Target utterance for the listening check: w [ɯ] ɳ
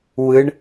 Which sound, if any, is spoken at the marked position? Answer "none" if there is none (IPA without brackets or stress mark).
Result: ɯ